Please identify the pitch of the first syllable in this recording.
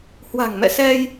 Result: low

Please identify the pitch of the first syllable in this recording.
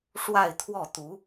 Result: falling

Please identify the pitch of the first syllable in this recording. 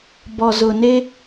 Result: low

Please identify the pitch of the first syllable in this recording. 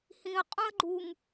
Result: low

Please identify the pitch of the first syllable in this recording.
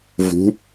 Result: rising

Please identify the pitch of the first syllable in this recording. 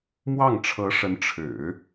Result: falling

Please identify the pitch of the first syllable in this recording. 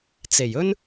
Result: low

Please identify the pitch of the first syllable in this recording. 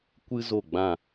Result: high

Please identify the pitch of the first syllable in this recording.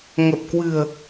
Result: low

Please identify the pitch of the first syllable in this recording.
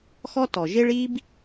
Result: high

